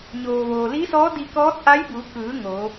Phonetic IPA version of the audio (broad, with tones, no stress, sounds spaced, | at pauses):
ɲ oː˩ ʋ oː˩ l i˧˥ s ɔː˧˥ d i˧ k ɔː˧˥ t̚ ʔ a˧˥ j b uː˩˧ k ɯː˩˧ ŋ o˩˧